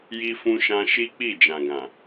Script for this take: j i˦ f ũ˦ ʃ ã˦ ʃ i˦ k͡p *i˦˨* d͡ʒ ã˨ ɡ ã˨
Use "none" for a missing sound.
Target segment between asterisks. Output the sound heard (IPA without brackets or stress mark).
i˦˨